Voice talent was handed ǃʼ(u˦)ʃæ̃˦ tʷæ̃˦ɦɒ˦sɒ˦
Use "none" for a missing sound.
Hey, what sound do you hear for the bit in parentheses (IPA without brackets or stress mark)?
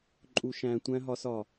u˦